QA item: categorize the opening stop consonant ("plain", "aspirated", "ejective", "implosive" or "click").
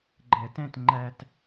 click